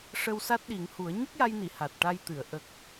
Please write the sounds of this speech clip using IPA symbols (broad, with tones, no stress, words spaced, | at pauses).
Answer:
ʂə˧wsa˦˥t̚ɗi˨˩˦ŋhu˨˩˦ə̯ ɲə˦˥k̚ja˧jni˨˩˨ ha˨˩t̚ʈa˧jt̪ɨ˨˩˨ə̯ ʔə˨˩k̚